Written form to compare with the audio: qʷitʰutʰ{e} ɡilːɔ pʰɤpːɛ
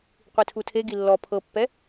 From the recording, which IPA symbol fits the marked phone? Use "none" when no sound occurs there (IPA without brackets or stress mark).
e